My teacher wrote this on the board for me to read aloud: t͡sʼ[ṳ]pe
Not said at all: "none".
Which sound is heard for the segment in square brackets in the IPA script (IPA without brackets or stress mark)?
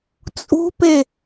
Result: ṳ